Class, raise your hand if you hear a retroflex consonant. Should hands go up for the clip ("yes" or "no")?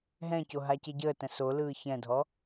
no